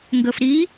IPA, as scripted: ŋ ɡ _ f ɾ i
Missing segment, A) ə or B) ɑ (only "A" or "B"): A